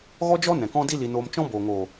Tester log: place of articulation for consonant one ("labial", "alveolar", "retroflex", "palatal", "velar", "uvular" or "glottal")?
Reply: velar